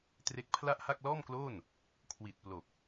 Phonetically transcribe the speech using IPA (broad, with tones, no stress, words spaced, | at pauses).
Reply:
tre˦˥k̚pʰla˥˩ʔha˥˩k̚ lɔː˥˩mkloː˥˩n | kʰwi˨˩t̚ plo˨˩k̚